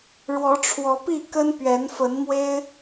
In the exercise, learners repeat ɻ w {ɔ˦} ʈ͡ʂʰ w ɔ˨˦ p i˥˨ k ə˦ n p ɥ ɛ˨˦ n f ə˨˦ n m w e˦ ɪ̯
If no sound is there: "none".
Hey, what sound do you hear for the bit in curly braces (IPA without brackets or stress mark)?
ɔ˨˦